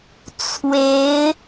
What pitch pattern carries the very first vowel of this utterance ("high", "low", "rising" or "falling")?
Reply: rising